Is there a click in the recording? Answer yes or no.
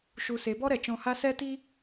no